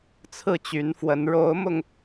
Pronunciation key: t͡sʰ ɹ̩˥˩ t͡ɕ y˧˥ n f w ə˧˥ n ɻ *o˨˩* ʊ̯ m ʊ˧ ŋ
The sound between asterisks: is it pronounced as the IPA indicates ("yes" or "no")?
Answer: no